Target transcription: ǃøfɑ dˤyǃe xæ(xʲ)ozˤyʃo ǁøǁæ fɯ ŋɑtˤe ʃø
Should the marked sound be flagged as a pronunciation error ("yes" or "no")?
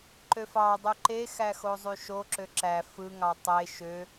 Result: yes